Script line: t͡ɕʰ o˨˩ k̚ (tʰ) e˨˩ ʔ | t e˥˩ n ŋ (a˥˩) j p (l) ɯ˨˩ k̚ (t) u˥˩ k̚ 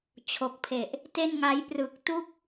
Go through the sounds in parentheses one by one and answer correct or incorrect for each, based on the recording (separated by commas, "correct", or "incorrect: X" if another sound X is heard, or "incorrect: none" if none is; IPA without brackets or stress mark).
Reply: incorrect: pʰ, incorrect: a˦˥, incorrect: r, correct